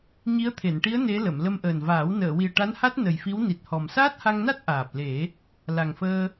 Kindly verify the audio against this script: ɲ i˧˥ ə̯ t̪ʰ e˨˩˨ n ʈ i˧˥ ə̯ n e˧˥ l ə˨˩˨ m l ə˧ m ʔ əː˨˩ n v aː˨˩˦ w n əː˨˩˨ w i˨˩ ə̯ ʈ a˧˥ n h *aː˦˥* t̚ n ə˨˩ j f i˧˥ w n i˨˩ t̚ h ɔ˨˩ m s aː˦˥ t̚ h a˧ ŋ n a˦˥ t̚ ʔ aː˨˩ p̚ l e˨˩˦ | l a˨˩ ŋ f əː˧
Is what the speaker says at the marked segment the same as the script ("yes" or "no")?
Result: no